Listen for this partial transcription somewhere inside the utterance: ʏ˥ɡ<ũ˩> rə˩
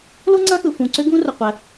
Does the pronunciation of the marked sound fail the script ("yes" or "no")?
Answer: yes